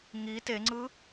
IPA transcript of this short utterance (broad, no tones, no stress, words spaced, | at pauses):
ŋi teŋ͡ǀɯ